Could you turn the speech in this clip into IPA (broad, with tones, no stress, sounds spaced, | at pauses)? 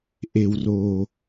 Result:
ʔ e˨ w r oː˨